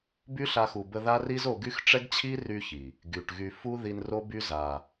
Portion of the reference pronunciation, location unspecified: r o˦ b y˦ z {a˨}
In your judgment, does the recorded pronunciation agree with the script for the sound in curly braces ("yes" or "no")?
yes